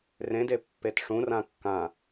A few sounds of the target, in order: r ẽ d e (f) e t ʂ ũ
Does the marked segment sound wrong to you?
yes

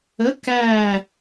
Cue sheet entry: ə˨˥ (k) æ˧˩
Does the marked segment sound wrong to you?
no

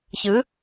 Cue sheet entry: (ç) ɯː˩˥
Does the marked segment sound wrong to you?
no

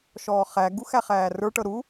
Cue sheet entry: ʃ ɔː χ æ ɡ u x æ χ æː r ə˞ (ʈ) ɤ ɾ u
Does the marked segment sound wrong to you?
no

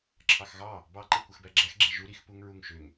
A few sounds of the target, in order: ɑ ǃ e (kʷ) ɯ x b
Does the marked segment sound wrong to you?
no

